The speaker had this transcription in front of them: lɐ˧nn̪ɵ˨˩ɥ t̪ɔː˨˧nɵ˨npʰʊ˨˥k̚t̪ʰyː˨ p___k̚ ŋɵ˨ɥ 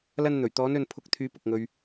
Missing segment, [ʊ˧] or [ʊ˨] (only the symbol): ʊ˨